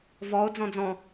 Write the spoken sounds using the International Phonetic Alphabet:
v ɔ o̯ d͡z ɔ̃ d͡z ɔ̃

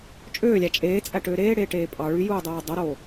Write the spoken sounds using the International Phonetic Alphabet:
t͡ʃʼ øː lʲ æ t͡ʃʼ eː t͡sʼ æ ʈ øː ɾ eː ɽ eː ʈ eː pʼ ɑ ɭ y j uː dˤ oː dˤ o ɾ oː

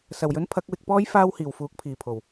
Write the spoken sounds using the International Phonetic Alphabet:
s ɐ˨˩ w j ɵ˨˥ n pʰ ɐ˨˥ k̚ w ɪ˧ k̚ p ɔː˥ j f aː˥ w h iː˨˩ w f uː˨˥ k̚ pʰ iː˨˩ pʰ o˨˩ w

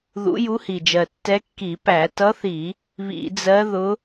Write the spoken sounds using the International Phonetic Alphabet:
ð ṵ˧˥ j u˧˥ h i˨˩ d͡ʒ ɜ˨˩ tː ɛ˧˥ kː i˧˩˧ p æ˧˩˧ t ʌ˧˥ θ i˧˩˧ | β ḭ˧˩˧ d͡z ɜ˧˥ ð ʊ˧˥

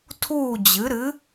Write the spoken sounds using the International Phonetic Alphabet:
tʰ uː˥˨ d͡ʑ ɨ˩˥ ɾ ɨ˩˥

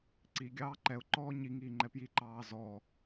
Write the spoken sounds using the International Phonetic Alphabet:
ǀ i ɡʲ ɑː ǃ ɛ ʊ̯ ǃ ɔː ɲ i ŋ iː ŋ͡ǃ ɛ p j i ǃ ɑː z ɔ

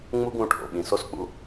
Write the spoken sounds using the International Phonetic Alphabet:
ŋ͡m u˥ ɡ ũ˦ ʈʰ o̰˩ ɓ ĩ˩ s o˥ s k͡p ṵ˥

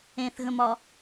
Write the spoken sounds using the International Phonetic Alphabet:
ẽ θ ɣ ə̃ m ɒ

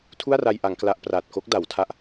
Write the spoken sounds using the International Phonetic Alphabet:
tʰ u˥˩ a̯ r a˧ j ʔ a˩˦ ŋ k l a˦˥ ʔ p r aː˨˩ t̚ k o˦˥ k̚ d a˩˦ w tʰ a˦˥ ʔ

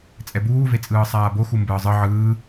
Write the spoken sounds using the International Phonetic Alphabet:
t͡sʼ ɛ b uː v e t͡sʼ ɯː sˤ aː b o x u m b ɯː zˤ ɯ ʕ ɯː

